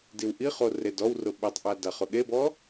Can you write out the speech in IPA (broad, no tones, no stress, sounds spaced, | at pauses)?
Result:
d i w ʔ i χ o r e d ɔ w r ʊ ɓ e tˤ ʔ a d a χ ʊ ɠ e b ɔ